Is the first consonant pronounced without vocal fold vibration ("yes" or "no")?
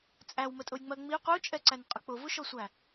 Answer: yes